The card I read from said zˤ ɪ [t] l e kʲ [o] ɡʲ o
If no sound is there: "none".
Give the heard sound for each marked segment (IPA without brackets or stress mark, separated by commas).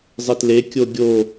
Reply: t, o